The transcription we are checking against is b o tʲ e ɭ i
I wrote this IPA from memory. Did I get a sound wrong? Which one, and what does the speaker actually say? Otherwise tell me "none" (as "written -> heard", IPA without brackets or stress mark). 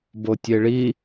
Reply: none